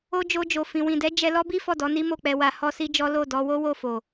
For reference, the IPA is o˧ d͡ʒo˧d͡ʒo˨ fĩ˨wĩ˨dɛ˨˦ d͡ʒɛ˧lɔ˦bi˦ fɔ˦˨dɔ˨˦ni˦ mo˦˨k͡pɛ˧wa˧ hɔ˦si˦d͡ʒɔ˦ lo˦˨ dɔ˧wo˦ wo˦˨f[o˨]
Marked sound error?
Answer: no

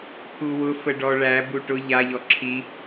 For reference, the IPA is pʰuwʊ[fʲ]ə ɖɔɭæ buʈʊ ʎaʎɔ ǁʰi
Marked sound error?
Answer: yes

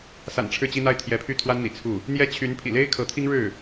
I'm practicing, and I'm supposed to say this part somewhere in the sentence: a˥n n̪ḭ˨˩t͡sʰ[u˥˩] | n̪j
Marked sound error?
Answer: no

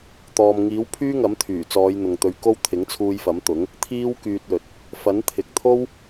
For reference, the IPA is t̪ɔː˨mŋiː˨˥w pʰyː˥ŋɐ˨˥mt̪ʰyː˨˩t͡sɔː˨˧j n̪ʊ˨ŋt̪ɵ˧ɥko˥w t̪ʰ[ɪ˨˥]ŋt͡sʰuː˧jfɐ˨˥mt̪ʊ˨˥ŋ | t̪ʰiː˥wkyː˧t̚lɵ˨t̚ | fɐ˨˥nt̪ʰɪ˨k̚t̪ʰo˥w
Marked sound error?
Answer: no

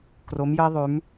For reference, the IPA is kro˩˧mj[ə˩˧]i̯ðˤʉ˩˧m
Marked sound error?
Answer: yes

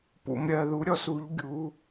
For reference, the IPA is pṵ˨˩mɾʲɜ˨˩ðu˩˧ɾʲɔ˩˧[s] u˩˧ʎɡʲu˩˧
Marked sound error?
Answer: no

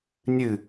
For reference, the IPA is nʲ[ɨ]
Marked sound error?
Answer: no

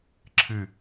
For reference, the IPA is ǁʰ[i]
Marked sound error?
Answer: yes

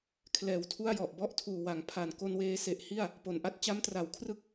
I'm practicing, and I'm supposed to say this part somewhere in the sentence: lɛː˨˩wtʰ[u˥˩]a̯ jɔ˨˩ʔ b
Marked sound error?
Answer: no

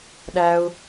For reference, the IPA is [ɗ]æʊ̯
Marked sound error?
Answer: no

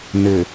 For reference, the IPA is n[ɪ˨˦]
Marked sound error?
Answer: yes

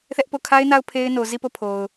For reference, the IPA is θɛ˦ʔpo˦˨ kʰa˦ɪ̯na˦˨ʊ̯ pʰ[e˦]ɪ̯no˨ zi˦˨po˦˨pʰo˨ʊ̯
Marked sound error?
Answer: no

